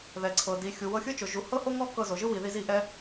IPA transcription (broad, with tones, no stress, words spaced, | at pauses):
ðɛ˨ǀʰɤ˨di˨ xʲu˨wɤ˧xʲɯ˦t͡ʃo˨ ʒu˨hɤ˦ho˦ŋɔ˦ kɤ˧zo˨ʒɯ˦ wi˨ði˧zi˧ ʔɛ˦